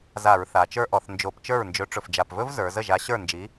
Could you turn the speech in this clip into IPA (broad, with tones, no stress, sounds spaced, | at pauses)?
z a˧˩˧ ɹ θ a˩˧ t͡ʃ ə˞˦˥ ʔ ɔ˩˧ θ n d͡ʒ o˧˩˧ p t͡ʃ ə˞˥˩ ɹ n d͡ʒ ɵ˨˥ ʈ͡ʂ ɵ˨˩ f d͡ʒ a˨˩ p v ɵ˦˥ v z ə˞˩˧ z ə˥˩ ʒ a˨˥ ɕ ə˞˥˩ n d͡ʒ i˨˥